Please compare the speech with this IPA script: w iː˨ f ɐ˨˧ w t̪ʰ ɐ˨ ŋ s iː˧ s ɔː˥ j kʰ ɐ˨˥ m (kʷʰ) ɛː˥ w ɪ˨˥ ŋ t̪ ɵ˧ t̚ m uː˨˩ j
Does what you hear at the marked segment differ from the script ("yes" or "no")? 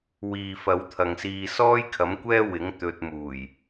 yes